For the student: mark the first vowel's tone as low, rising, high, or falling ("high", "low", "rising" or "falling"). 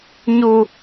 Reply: high